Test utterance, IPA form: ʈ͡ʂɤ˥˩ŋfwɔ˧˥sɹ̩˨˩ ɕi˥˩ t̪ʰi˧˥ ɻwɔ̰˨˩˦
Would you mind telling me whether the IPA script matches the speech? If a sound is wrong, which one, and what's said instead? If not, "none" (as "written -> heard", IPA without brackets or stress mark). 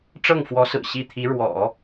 none